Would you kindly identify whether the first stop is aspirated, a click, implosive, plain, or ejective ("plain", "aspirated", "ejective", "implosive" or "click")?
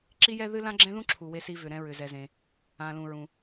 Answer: click